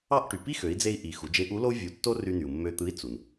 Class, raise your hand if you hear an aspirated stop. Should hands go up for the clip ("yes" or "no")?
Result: no